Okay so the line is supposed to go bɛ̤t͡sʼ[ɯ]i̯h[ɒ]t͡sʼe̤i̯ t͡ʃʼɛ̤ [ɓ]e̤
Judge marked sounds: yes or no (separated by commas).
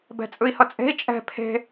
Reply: yes, no, no